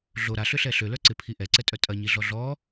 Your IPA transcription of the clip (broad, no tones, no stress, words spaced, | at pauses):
ɮo ɾaɬʏɬɛ ɬølœ ǀɪpʰi ʔɛǀɛtʼœ tʼɐɲiɮɔ ɮɔ